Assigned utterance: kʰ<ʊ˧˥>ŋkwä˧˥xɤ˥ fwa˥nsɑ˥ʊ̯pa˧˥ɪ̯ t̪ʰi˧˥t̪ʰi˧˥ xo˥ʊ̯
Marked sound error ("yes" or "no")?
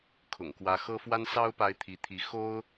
yes